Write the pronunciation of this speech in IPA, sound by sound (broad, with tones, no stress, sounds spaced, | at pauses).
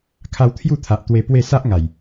kʰ a˧ w t̪ʰ j u˥˧ t̪ʰ a˨ ʔ t̪ w e˧ p w e˥˧ s a˦ ʔ ŋ a˨˩ j